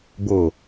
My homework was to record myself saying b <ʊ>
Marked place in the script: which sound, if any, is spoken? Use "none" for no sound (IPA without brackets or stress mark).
ʊ